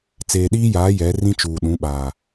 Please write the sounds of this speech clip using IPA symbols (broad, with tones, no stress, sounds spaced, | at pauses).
t͡s eː˨ ɗ iː˦ j aː˨˦ j ɛ˨˦ r ĩ˦ t͡ʃ uː˨ ɗ ũ˨˦ ɓ aː˨